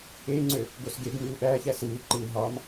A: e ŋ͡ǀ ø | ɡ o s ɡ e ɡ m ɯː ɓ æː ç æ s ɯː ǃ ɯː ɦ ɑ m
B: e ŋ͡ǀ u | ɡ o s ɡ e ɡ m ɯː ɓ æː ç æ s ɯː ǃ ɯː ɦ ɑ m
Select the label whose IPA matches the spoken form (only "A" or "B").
A